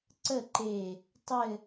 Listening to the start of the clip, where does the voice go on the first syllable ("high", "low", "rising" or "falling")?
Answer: falling